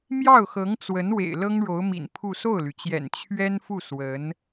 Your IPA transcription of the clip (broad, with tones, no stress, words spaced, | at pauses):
mjɑ˥˩ʊ̯xɤ˧˥ŋt͡swə˧˥n wḛ˨˩ɪ̯lɤ˥ŋɻo˧˥ʊ̯mḭ˨˩n pʰu˥˧ so˥˩ʊ̯ly˩t͡ɕjɛ̰˨˩n t͡ɕʰɥɛ˥nfu˥˩ swə˧˥n